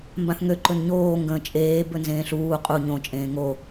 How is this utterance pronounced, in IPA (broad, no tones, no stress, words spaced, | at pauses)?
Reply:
mbãθŋø ǃɵnɲoː ŋɡə̃ːt͡ʃʼeː bɵnzẽːɬuː qʼu ɲõ t͡ʃʼẽːŋo